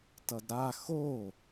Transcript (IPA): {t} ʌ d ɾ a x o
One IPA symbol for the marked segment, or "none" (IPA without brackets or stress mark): t